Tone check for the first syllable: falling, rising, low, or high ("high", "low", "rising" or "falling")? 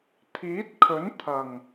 rising